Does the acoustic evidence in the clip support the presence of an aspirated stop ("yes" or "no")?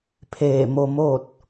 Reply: yes